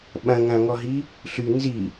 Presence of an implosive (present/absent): present